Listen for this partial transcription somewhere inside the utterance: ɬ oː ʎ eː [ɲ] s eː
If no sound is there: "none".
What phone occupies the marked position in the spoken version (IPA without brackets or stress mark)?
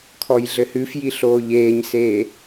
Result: ɲ